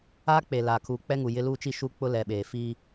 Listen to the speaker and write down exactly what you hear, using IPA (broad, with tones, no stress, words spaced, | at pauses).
aː˦k͡pe˨ laː˨kʰuː˨k͡pɛ˦ŋu˨ jɪ˦luː˦t͡ʃi˦ʃu˦ k͡pʊ˦lɛ˨ɓeː˨ fi˦